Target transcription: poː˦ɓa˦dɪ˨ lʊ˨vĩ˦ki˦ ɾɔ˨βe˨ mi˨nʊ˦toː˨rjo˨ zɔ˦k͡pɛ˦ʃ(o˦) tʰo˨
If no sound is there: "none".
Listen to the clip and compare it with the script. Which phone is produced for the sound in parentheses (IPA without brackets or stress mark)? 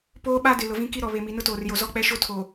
o˦